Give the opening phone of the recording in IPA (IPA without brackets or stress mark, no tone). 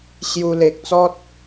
ɕ